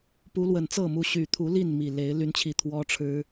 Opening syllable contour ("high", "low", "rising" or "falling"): rising